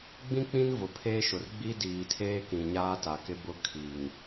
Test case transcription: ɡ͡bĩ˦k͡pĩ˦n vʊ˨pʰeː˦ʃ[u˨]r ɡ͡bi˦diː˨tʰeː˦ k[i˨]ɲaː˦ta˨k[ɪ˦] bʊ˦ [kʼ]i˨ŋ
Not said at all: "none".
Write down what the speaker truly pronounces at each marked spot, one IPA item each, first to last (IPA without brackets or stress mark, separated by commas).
ʊ˨, ĩ˨, ɪ˦, kʰ